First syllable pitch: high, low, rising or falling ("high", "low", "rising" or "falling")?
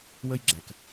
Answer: high